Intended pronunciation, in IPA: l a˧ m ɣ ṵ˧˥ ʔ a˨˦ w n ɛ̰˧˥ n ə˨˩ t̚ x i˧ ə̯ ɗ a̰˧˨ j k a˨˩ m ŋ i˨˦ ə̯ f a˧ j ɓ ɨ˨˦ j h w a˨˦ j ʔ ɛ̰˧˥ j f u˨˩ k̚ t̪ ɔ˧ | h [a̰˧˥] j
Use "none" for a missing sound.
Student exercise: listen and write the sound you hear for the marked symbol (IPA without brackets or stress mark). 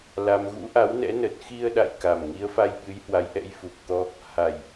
a˨˩